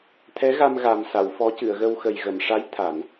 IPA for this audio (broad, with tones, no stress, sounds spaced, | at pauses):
t̪ʰ ɛ˧˥ ɣ a˧ m ɣ a˨˩ m s a˨˩˨ w f ɔ˧˥ c ɨ˨˩˨ ə̯ ɣ ə˧ w x ə˨˩ j ɣ ə˨˩˨ m ʂ a˧˥ j t̪ʰ a˨˩˨ n